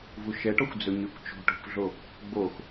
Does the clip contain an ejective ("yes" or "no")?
no